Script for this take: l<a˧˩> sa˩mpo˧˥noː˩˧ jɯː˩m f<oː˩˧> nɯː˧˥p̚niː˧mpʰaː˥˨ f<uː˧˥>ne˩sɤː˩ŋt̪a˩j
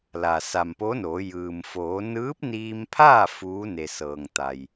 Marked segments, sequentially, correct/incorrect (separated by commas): incorrect, correct, correct